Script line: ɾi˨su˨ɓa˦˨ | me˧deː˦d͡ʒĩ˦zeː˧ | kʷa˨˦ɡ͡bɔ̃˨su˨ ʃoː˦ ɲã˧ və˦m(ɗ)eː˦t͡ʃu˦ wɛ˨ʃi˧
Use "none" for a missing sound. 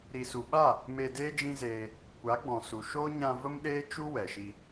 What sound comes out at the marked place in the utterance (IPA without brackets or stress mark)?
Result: ɗ